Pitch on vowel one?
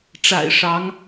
low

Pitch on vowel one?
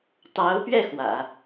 rising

